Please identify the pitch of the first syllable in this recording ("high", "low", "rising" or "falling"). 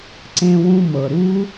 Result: high